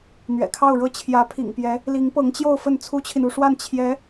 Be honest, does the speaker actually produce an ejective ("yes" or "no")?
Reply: no